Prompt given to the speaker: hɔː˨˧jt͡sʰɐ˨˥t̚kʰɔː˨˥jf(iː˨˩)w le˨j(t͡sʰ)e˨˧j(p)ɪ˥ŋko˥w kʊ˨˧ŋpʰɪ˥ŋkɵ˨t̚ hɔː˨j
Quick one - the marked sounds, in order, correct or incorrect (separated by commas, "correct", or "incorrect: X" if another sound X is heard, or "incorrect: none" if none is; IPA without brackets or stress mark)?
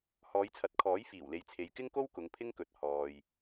correct, correct, incorrect: k